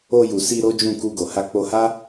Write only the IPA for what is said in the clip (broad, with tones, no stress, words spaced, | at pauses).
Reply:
o˧ju˨ si˧ ɾo˦d͡ʒũ˦˨ ku˧ɡo˨ ha˧k͡po˧ha˦